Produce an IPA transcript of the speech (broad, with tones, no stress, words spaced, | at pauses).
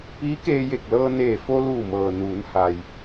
piː˧˥keː˧je˧˩k̚lɤː˧ neː˧˩fo˧luː˧˩mɤː˩ nuː˩˧nha˩j